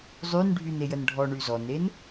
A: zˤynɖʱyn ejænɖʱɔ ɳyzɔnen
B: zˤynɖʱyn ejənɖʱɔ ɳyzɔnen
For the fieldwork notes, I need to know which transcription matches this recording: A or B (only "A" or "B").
B